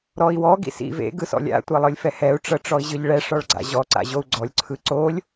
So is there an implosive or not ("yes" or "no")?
no